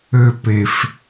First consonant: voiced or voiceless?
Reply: voiceless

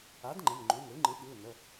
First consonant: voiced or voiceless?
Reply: voiced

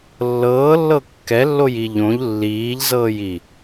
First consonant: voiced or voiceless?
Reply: voiced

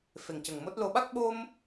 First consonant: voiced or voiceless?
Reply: voiceless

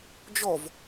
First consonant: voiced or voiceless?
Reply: voiced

